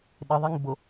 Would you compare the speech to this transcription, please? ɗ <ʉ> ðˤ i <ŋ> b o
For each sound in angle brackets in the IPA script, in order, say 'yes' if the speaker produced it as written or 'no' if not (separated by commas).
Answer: no, yes